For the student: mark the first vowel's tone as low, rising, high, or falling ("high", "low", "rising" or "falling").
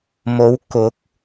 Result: rising